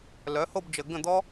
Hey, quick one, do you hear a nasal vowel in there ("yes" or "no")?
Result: yes